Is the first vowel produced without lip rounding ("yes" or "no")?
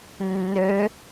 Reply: no